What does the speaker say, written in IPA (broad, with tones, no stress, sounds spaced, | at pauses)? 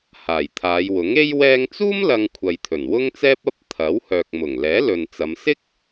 h aː˨˩ j t̪ʰ aː˨˧ j w ʊ˨˥ ŋ e˥ j w ɛː˧ ŋ t͡s uː˥ m l ɐ˧ ŋ kʷʰ ɐ˨ j t̪ʰ ɵ˨˩ n w ʊ˥ ŋ t͡s ɛː˥ p̚ ɐ˥ p̚ t̪ʰ ɐ˨˥ w h œː˨ k̚ m ʊ˨˩ ŋ l ɛː˨˥ l ɵ˨ n t͡s ɐ˨˧ m s ɪ˥ k̚